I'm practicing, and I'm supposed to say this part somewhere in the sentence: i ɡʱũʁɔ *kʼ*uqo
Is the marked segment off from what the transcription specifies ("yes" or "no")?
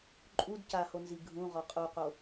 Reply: yes